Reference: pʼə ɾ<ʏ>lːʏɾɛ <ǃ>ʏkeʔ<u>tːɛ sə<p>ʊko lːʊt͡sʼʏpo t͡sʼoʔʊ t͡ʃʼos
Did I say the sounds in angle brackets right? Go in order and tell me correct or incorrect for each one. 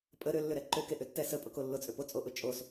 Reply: correct, correct, incorrect: ʏ, incorrect: pʼ

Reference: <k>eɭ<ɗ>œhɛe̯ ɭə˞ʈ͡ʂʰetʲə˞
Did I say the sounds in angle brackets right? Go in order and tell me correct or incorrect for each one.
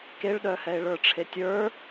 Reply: correct, correct

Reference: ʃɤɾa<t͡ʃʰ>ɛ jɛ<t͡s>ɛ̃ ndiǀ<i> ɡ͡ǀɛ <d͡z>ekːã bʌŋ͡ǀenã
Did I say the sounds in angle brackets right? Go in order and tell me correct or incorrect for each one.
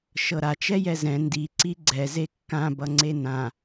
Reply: incorrect: t͡ʃ, incorrect: z, correct, incorrect: z

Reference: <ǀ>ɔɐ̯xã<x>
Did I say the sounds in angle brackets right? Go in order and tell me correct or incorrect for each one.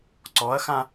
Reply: correct, incorrect: none

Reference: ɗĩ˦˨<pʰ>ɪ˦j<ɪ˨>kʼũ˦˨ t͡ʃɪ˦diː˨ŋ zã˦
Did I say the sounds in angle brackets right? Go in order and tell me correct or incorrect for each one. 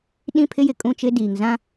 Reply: correct, correct

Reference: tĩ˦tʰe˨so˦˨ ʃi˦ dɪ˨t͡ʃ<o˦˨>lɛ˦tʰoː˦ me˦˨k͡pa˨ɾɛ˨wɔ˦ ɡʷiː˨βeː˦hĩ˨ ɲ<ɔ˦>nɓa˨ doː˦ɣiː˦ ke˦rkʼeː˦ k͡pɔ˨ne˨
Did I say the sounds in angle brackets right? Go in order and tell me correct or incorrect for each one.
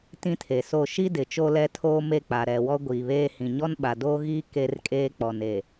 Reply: incorrect: o˦, correct

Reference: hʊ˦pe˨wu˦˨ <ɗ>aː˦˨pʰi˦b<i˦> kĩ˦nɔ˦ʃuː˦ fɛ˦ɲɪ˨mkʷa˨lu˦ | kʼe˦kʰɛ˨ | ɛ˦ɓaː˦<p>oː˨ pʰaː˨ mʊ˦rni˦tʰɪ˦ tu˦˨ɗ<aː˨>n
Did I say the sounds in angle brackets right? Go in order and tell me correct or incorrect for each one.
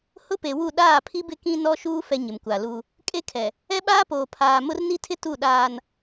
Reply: correct, incorrect: ɪ˦, correct, correct

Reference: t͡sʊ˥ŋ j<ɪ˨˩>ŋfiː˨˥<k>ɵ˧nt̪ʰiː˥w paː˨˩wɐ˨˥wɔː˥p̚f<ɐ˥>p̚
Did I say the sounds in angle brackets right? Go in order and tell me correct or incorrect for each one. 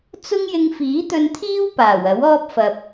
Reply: incorrect: ɪ˧, incorrect: t̪, incorrect: ɐ˧

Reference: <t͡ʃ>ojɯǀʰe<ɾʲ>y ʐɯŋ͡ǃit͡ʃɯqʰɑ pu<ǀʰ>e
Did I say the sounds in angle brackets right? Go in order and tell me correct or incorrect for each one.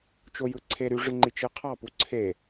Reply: correct, incorrect: ɾ, correct

